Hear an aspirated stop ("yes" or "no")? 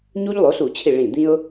yes